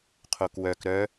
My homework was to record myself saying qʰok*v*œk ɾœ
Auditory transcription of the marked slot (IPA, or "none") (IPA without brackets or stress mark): w